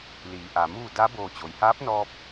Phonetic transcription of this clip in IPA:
l iː˩˧ ʔ a˩ m uː˥˨ d a˧˥ b oː˧˩ t͡ɕ o˩ j h aː˧˥ p̚ n ɔː˧ p̚

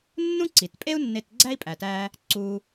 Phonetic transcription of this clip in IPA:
nː ũ˥ ǀ i˩ t pʼ e˥ u̯ nː e˧ t ɡ͡ǀ æ˥ i̯ pʼ æ˩ t æ˧ | ǀ u˧

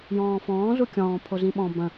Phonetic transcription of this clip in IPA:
j ɔ̃ː f ɔ̃ː z u kʲ ɔ̃ː pʰ o z ĩ ɓ ɔ̃ b ə̃

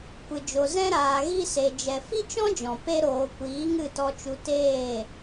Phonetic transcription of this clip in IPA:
kʷ ɨ˨ d͡ʒ o˨ z ɛ̃˧ ɾ aː˨ ɣ i˧ s e˨ d͡ʒ ɛ˨ f i˦ t͡ʃ ɔ̃˦ d͡ʒ ɔ̃˨ p e˧ ɾ oː˨ kʷ iː˨˦ ŋ ɨ˦˨ t ɔ˧ t͡ʃ u˧ t eː˦˨

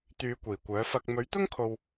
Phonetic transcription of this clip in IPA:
t̪ yː˨˧ kʷ iː˨˩ kʷ œː˨˥ f ɐ˧ k̚ m ɵ˨˥ ɥ t̪ ʊ˥ ŋ kʰ o˨ w

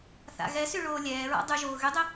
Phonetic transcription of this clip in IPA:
θ a̰ ɣ ɛ s y ɭ oː lʲ ɛː ɹ a̰ dˤ y ʒ oː ɣ y dˤ e

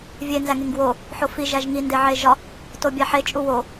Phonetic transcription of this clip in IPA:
vʲ e n z æ ŋ e ŋ ɡ w o | ħ o f i ʒ æ ʒ ŋ i n d e ʕ e ʒ ɒ | t o bʲ æ ħ e t͡ʃʼ u w o

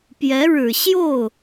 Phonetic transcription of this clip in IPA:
p j ɛ˧˥ ɻ ɻ̩˨˩ ɕ j o˥˩ ʊ̯

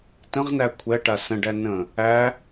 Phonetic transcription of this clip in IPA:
t ə̃ ʁ n æ kʷʰ ɛ ʈ a s ə̃ ɖ æ n ə̃ | æ

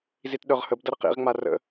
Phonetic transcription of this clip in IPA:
z i t ɗ œ ʁ h ə b d ɐ ɾ ə q ḭ ʁ ŋ͡m a r ə̰

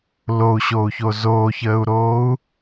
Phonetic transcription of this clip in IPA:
l o u̯ ɕ oː u̯ ç o z oː ç əː u̯ ɾ oː u̯

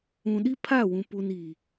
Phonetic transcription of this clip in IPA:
ũ˨ ɗ i˦ pʰ a˦˨ w ũ˨ p u˨ n iː˨

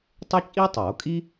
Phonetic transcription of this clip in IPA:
tˤ e˥ t͡ʃʼ i˥ tˤ o˨˩˦ kʼ i˥

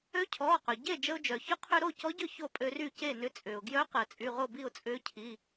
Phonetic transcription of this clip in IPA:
ø˧˥ cʰ ɔː˩˧˩ q œ˩ ɟ e˥˩ d͡ʒ ə˧ ʊ̯ d͡ʒ œ˩ ç ʊ˧˥ qʰ ø˧ ɾ o˥˩ c ɔ˧˥ ɟ ʏ˥˩ ç o˥˩ pʼ ø˧ r y˥˩ c e˥˩ n ʏ˧ t͡sʼ ʏː˩ ʊ̯ ɡ j œ˧˥ q əː˩ t͡sʼ y˩˧˩ ʁ o˥˩ b i˥˩ ʊ̯ t͡sʼ ʏː˧˥ cʰ i˩˧˩

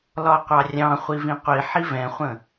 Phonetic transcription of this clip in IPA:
l ɒ qʷ ɑ rʲ ɑ̃ χʷ i v ĩ qʷ i ħ i v ɛ̃ χʷ ə̃

